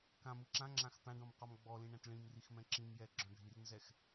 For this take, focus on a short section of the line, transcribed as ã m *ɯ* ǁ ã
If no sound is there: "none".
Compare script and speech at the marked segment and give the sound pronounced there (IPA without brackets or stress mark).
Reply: ɯ